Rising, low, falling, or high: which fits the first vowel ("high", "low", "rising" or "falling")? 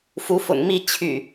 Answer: rising